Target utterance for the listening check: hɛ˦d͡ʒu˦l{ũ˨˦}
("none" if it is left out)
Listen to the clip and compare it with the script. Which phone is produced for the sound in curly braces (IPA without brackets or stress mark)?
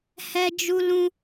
ũ˦